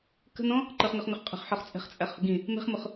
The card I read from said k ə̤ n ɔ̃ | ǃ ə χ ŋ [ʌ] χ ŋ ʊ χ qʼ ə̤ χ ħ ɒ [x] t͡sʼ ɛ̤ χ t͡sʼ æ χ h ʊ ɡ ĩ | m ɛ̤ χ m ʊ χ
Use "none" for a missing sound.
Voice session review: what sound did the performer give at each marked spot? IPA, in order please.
ʌ, χ

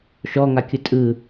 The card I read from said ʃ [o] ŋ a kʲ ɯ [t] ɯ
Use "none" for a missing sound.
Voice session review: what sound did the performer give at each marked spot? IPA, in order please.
ɔ, tʼ

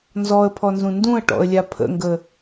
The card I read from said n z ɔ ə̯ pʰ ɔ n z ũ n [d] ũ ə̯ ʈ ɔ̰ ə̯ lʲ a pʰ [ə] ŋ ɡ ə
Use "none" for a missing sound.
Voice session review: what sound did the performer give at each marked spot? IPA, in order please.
d, ə̰

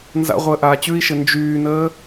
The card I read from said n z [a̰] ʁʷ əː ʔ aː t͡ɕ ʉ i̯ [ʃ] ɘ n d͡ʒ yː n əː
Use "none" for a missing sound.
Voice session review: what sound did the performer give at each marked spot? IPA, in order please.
a̰, ʃ

